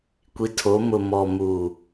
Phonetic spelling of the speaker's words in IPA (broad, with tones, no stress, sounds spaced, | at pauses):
kʷ i˨ tʰ o˨˦ m ʊ˨ m ɔ˨ m uː˨